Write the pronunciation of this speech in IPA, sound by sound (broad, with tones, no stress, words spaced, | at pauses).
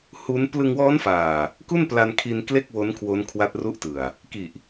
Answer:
hu˦˥n plɯ˧ŋwɔː˦˥nfaː˨˩ | ku˥˩npla˧nkʰi˧n kle˥˩k̚wo˦˥n kʰwo˦˥nkʰwa˦˥t̚ ru˦˥ʔtɯ˨˩a̯ | ki˨˩ʔ